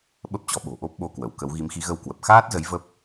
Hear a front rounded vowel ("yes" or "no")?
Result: no